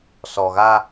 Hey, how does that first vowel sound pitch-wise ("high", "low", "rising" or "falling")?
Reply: low